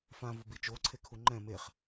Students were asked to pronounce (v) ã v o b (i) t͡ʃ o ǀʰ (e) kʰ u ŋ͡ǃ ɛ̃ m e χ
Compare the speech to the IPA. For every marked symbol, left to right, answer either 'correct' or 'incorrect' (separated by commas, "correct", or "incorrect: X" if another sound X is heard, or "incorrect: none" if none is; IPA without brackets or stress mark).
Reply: incorrect: f, correct, correct